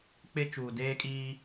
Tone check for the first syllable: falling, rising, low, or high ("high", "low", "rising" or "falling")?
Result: high